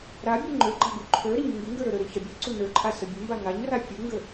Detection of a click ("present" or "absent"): present